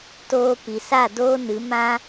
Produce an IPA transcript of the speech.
t oː˧ p i˨ s a˦˨ d oː˦ n ɨ˨˦ m ã˦

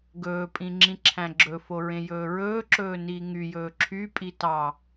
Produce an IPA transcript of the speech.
ɡ ɵː pʼ ĩ ŋ͡ǁ ĩ ǁʰ æ̃ ɡ͡ǁ ɵ f o ɹ ẽ j ɵː ɹ ɵː ǁ ɵː n iː ŋ y j ɵː ǁʰ y pʼ i t ɑ

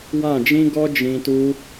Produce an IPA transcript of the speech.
w ã˦˨ d͡ʒ ĩ˦ ɡ ɔ˦ d͡ʒ ĩ˧ t u˦

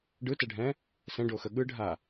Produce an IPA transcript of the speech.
ɖ ɯ t ɛ ɖʱ ɛ̃ | s ɛ̃ ɖ o x ə ɠ ɯ ɖʱ a

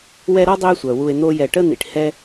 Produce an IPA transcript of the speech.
w ɛ˦ ɾ ɔ˥ dˤ ø˦ e̯ sʷ œ˩ w u˨ e̯ n̪ o˦ j ɛ˨ ʈ ə˥ n̪ ḭ˨ ʈ h ɛ˥

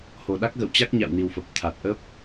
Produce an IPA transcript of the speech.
h o˨˩ ɗ a˦˥ k̚ ɣ ə̰˧˨ w t͡ɕ a˦˥ k̚ ɲ a̰˧˨ w n i˨˩ w f ə˨˩ p̚ t̪ʰ a˨˩ t̚ ʔ ə˦˥ p̚

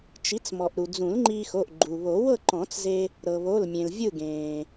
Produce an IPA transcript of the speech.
t͡ʃ i˩˥ t͡s m ɔ˩ ʔ ɾ u˩ d͡z ũ˨˩˦ l ŋ͡ǃ iː˧ x o˩˧˩ ʔ ɡ͡ǃ u˩ β o˨˩˦ w ɤ˥˨ ǃ ɔ̃˨˩˦ t͡s z e˧ | ɾ ɤ˩ β o˩˧˩ l mʲ ẽ˩ l vʲ ɯ˥˨ ɡ ẽː˩

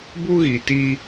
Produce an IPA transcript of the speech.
b u˦ ɣ i˨ t iː˦

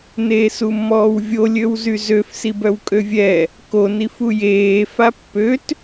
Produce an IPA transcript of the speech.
n eː s u mː ɔː w vʲ o lʲ ø w z y z ø f s i b œ w kʼ ø vʲ ɛ | k o n i f u j eː f a pː ø t

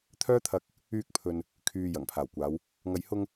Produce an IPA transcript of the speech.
t̪ʰ œː˥ t̪ʰ ɐ˧ k̚ | yː˧ k̚ pʰ ɵ˨ n | kʰ yː˨ j ɐ˨˩ ŋ pʰ aː˨˩ w kʷ aː˨˧ w | ŋ ɐ˨ j h ʊ˧ ŋ

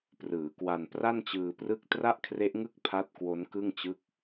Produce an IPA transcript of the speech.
p r ɯː˩˦ k w a˧ n p r a˥˩ n t͡ɕ ɯː˧ p r ɯ˥˩ k̚ t r a˥˩ ʔ kʰ r e˦˥ ʔ ŋ ɯ˥˩ k̚ pʰ a˦˥ t̚ k w o˦˥ n k ɯ˥˩ ŋ t͡ɕ ɯ˥˩ k̚

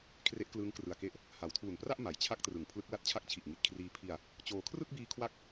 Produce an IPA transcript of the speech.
kʰ r e˦˥ ʔ k l ɯː˦˥ ŋ k r ɯ˨˩ a̯ k e˦˥ ʔ | h a˩˦ w tʰ uː˨˩ n p r a˥˩ ʔ m a˩˦ j t͡ɕʰ a˦˥ k̚ t r ɯ˩˦ ŋ pʰ l ɯ˦˥ k̚ l a˦˥ t̚ t͡ɕʰ a˦˥ k̚ t͡ɕʰ i˨˩ ʔ ŋ i˨˩ t̚ kʰ r iː˦˥ pʰ i˧ a̯ | t͡ɕ oː˧ kʰ r ɯ˥˩ k̚ b iː˧ kʰ w a˥˩ k̚

